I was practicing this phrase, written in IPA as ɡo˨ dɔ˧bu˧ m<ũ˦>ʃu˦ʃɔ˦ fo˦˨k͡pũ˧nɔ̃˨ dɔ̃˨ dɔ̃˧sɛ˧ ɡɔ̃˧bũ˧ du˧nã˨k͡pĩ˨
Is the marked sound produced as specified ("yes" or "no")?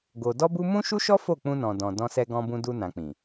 yes